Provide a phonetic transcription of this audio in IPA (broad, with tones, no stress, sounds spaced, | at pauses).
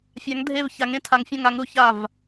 fʲ a˨˥ ŋ dʱ e˦˨ v ç a˨˥ ŋ ẽ˨˥ tʰ a˨˥ ŋ fʲ ɔ̃˦˨ ŋ a˨˥ ŋ ɾ u˨˥ ç a˦˨ v